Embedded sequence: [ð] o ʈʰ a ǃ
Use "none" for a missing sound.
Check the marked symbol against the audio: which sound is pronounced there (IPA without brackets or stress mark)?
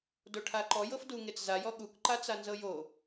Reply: d